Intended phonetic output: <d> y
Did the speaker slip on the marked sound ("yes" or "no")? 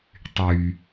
yes